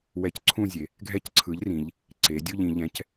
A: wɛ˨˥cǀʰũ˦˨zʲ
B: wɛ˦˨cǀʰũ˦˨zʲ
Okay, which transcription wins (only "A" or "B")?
A